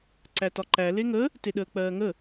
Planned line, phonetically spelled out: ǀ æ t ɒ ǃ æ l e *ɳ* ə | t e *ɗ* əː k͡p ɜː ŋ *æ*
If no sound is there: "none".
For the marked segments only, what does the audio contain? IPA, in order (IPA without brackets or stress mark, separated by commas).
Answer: ŋ, ɗ, ə